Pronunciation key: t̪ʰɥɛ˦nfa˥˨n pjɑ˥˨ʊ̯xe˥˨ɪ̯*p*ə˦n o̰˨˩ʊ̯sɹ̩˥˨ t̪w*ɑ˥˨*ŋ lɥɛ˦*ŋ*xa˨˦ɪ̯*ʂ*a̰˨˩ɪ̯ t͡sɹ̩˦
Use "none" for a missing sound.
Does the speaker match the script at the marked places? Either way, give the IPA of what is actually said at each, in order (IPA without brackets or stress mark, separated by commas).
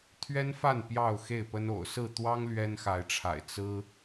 p, ɑ˦, n, ʈ͡ʂʰ